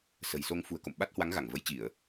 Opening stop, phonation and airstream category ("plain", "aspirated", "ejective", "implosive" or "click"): plain